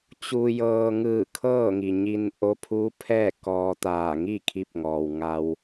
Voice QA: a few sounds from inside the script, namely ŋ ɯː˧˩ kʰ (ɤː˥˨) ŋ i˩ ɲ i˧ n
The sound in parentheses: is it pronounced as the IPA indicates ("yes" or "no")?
yes